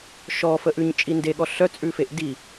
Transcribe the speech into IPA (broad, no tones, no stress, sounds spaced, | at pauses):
ʃ ɔ f ə ʔ ʉ ɲ t͡ʃʼ i n d e ɠ ɔ ɬ œ t͡sʼ ʉ f e ʔ d i